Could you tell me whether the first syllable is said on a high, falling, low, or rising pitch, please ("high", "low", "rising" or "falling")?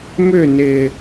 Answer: falling